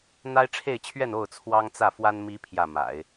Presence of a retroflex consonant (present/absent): present